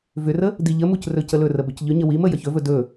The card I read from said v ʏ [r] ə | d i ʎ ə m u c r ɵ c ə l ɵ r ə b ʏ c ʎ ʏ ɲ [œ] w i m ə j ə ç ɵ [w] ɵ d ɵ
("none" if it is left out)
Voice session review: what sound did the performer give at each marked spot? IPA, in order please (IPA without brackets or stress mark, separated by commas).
r, ə, v